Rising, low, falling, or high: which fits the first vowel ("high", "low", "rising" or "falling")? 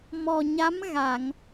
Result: low